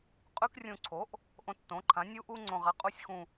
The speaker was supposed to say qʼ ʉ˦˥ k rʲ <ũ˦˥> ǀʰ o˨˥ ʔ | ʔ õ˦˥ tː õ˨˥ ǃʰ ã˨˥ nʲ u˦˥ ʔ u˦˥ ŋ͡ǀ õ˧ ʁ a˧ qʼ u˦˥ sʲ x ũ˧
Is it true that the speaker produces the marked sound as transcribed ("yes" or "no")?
no